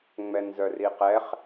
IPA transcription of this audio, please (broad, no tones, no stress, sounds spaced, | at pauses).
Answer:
ŋ͡m ɛ n z œ r i q ɛ χ